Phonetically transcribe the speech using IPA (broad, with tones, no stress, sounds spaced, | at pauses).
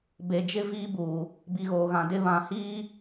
b e˨ d͡ʒ ɪ˦ v iː˦ b uː˨ | b i˨ ɣ oː˨ ɣ ã˨ d ɪ˦ β ã˨ h iː˦